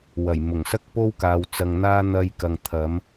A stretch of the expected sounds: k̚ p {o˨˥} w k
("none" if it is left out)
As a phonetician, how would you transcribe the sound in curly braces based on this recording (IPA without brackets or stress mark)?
o˥